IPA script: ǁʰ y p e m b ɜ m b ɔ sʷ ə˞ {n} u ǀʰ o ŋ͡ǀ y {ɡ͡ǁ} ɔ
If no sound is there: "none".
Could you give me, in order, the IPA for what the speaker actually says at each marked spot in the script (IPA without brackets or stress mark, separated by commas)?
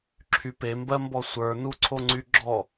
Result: n, ɡ͡ǁ